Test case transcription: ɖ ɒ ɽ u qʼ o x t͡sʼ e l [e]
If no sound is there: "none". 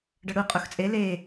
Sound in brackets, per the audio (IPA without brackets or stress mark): e